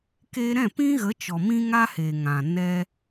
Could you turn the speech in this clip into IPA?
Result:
k eː˧ ɾ ɛ̃˦˨ p ĩ˦ ɣ ə˨˦ t͡ʃ ɔ˨ m ĩ˦ ŋ a˦ h eː˨ ŋ ã˨ n ɛ˧

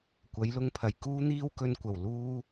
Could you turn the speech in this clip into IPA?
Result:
kʷ ɐ˨˥ j l ʊ˧ ŋ pʰ ɐ˨˩ j k uː˥ n̪ iː˥ w k ɵ˧ n kʷ ɐ˨˩ w l uː˥

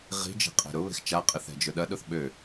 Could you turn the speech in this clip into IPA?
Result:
ʁ i̤ d͡ʒ e̤ qʼ e̤ ɾ ʊ β e̤ x t͡ʃ a qʼ ɪ θ ɛ̤ d͡ʒ ʊ ɗ ɐ ɗ ʊ θ ɓ ø

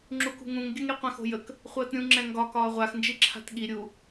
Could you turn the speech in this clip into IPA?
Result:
ŋ͡ǁ u k ṳ ŋ ũ ŋ ɡʲ ə ŋ ɾ i qʷ ɛ̃ x o̤ j ə k | χʷ əː t ɾʲ ũ ŋ͡ǁ ɛ̃ ŋ ɡ ɒ k ɒː ʁʷ a x n d͡ʒ i ǁʰ a̤ t ɠ i ɾʲ u

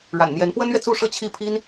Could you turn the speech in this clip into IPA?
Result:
ɻ a̰˨˩ n n̪ j ɛ˧˥ n p w ə˥ n ɥ ɛ˨ t͡s u˥˧ ʂ ɤ˥˧ t͡ɕʰ i˥˩ pʰ i˥ n

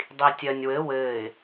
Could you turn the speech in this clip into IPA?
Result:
dˤ i tʲ ɜ nʲ w ɘ w ɘː ɪ̯

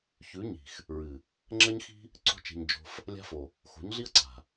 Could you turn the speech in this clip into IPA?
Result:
ç ʉ˨˦ ɲ i̤˨ x | ɹ ɨ˨ | ŋ͡ǁ ɐ˦ ɲ x i̤˦ | ǀ o̤˦ t͡ʃ e̤˧ ɲ d͡ʒ o̤˧ f | lʲ a̤˦ f o˨ | x o̤˨˦ ɲ ɮ i˦ ɐ̯ ǀ a̤˨

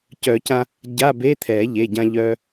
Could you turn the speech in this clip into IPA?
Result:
c œ˨˩˦ c ã˧ | ɟ a˧˥˧ b e˧˥˧ t̪ʰ ɛ˨˩˦ ʎ e˩˧˩ ɟ ã˧ ʎ œ˧

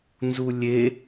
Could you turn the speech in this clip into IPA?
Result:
n z u lʲ e

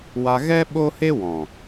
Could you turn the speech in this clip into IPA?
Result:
w a˧ ɣ ɛ˦ ɓ o˦ h e˦ w ɔ̃˨

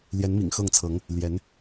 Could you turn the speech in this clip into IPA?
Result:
l j ɛ˧˥ n m ḭ˨˩ ŋ x ɤ˥˩ ŋ t͡sʰ ɤ˧˥ ŋ | l j ɛ˧˥ n

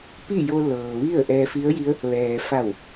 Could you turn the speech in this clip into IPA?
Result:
p i˥˨ j o˧ l ɤː˩ ʋ i˥˨ ə̯ ʔ ɛː˧ f i˧˥ ə̯ j i˧˥ ə̯ | ʋ ɛː˩ f a˧˩ w

